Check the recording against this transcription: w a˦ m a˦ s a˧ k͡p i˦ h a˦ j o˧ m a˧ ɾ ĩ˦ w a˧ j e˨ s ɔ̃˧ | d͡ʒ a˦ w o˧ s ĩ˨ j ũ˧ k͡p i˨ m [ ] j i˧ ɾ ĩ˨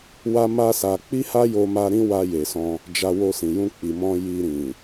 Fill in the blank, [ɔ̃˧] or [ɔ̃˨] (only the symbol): ɔ̃˧